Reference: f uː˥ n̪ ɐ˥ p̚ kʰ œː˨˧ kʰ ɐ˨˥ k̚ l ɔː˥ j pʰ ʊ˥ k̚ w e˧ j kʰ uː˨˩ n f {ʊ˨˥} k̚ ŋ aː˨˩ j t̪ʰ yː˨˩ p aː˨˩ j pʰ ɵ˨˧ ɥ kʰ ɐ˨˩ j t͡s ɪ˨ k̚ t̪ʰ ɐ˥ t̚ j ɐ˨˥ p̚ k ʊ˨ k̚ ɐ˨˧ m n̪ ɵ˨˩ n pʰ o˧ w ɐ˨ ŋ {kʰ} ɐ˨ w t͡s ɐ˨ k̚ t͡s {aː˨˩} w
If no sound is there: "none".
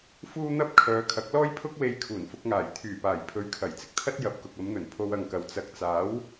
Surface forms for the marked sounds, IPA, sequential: ʊ˧, k, aː˨˥

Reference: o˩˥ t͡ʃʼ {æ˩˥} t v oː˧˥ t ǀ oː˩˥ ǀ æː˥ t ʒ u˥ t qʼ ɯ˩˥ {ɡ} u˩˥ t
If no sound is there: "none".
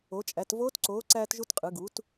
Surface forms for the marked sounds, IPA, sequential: æ˩˥, ɡ

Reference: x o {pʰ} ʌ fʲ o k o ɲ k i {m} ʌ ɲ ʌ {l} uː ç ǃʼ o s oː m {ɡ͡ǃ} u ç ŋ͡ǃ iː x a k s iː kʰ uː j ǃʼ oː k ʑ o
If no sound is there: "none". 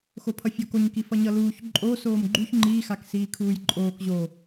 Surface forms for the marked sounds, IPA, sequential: pʰ, f, l, ɡ͡ǃ

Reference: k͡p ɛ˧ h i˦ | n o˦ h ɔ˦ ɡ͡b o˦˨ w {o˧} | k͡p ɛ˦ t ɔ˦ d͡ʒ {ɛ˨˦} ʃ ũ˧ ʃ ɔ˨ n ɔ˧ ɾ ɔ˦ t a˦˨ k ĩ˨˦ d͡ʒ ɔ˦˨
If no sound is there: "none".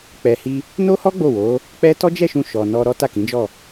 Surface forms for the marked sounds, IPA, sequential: o˨˦, ɛ˦˨

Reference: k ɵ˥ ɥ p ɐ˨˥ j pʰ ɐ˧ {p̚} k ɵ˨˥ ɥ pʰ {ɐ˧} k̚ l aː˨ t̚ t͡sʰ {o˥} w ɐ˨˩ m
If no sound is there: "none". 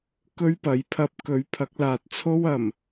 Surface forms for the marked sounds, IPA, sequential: p̚, ɐ˨˥, o˥

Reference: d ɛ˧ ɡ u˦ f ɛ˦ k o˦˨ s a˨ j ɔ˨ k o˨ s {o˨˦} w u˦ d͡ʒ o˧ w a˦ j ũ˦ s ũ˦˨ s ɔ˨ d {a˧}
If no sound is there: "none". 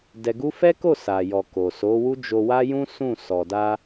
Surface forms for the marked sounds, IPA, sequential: o˨˦, a˧

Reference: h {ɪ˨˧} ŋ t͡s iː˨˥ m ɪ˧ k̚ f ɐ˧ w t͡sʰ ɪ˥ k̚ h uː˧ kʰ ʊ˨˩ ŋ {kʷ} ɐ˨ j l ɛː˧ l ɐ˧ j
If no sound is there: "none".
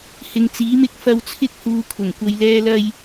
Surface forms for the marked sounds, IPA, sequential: ɪ˨, kʷ

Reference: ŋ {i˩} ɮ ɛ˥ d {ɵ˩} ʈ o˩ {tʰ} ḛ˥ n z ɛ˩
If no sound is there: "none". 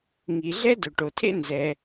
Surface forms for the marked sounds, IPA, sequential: i˩, ɵ˩, tʰ

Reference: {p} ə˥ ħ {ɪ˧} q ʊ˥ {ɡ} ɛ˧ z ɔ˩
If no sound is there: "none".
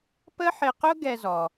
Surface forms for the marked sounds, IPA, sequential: p, ɪ˧, ɡ

